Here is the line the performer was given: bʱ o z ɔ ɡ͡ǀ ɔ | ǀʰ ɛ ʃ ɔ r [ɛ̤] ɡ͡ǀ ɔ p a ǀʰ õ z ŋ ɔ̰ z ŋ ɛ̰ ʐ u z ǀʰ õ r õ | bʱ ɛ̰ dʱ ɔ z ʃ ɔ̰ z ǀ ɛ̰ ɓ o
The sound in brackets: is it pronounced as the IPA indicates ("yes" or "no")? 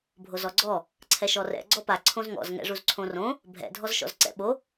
no